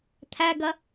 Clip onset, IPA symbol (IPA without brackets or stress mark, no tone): t̪ʰ